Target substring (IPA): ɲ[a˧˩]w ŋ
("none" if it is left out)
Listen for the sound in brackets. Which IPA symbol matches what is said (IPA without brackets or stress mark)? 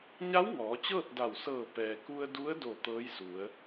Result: a˧˥